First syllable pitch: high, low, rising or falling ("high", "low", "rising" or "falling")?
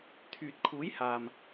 low